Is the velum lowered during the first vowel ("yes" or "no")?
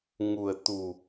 no